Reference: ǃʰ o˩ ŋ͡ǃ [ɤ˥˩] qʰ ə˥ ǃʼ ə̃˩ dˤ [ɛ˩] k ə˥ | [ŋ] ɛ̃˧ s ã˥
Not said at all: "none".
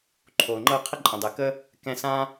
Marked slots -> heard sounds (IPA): ɤ˥˩, ɛ˩, k

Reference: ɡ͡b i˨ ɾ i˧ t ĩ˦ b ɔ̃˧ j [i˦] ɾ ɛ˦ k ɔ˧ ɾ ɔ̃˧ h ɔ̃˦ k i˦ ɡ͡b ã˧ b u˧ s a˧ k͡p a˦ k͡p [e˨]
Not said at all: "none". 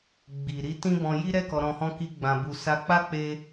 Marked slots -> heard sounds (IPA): i˦, e˧

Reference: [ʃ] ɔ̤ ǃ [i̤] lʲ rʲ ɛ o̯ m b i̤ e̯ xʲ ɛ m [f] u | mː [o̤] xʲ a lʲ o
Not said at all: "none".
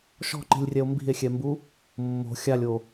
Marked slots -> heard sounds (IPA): ʃ, i̤, b, o̤

